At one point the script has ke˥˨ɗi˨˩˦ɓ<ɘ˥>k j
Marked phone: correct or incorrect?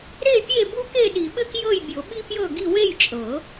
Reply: correct